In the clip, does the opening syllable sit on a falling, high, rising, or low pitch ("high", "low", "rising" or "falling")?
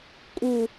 falling